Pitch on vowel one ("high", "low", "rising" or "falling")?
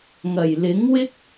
low